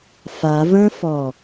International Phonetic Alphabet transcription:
fa və̃fɔ

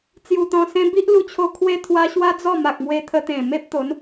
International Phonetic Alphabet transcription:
t͡sju˧t̪ɔ̃˧sẽ˦ bi˦ʔlu˧t͡ɕʰo˧ kʰwe˧t̪ʰwa˧ ɕwa˦d͡zɔ˥˧ma˨k̚mwe˧ t̪ʰə˧t̪ẽ˨˩me˦p̚ t̪o˨˦n

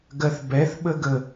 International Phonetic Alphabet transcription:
ɡɜθbɛθɓəɡə

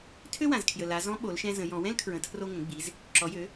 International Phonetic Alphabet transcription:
tʰø˥wã˩zkʰjə˩ la˩˧ zɔ̃˧˥ɓo˩˧lʃɛ̃˧ zə̃˩˧jɔ̃˩˧ wɛ̃˥lkʰɹə̃˩˧ tʰro˧ŋə̃˩˧ɡ͡bi˩˧z | ǁɔ˩˧jø˩˧

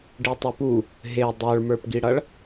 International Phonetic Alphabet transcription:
ɖitˤʌpu | ɦe dˤə˞ɭmə˞pɡiɽʌɭ

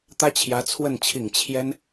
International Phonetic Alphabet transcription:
t̪ä˥t͡ɕʰjä˧˥t͡sʰwə˥˩n t͡ɕʰi˨˩ŋ t͡ɕʰjɛ˥n

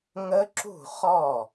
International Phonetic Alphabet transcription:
ŋə˦˥ǁṳ˥˩χɔ˥˩

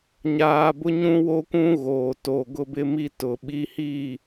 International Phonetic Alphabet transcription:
ɲaː˦ bʊ˦ɲũ˦ wo˦kʷũ˦ ɣoː˨toː˨ɡʊ˦bɪ˦ mi˦tʊ˨ɓi˦ hi˦˨

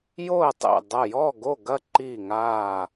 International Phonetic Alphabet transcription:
jo˥˨ə̯tˤḛ˧˩ dˤɐ˧˩jɔ˥˨ ɡo˥˨ɡɐ˥˨ ǃi˧˩ŋaː˧˩

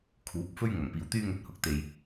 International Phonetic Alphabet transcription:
kʰuː˨˥p̚fɵ˥ɥ ŋɐ˨˩ŋpiː˨˩wt̪yː˧ŋɵ˨˥t̚ hʊ˨k̚t̪e˨j

